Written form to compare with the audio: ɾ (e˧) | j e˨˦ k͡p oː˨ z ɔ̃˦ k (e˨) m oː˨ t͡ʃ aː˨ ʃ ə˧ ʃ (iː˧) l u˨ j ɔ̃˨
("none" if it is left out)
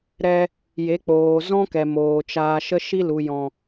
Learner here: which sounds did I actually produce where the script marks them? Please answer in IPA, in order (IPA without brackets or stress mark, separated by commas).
ɛ˧, ɛ˨, i˧